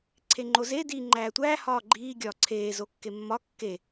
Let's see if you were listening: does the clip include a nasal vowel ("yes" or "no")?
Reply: no